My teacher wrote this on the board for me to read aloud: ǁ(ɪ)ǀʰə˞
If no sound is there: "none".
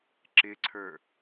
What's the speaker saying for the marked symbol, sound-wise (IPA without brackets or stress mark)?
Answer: ɪ